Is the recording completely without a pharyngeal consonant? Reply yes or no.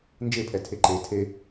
yes